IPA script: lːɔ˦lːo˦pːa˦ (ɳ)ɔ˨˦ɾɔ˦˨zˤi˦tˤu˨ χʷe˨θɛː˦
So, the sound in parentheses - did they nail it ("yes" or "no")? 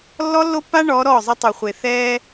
yes